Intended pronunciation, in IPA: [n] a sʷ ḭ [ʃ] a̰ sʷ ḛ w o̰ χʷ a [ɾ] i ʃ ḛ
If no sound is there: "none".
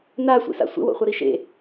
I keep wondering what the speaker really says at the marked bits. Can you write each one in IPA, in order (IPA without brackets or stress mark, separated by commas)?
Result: n, s, ɾ